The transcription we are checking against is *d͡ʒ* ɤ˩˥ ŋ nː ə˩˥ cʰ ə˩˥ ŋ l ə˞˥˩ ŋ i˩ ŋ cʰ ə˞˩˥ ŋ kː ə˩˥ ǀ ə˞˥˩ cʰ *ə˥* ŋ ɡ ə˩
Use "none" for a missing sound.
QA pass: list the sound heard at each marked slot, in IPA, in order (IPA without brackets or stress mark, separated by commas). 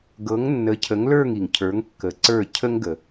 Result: ɡ, ə˥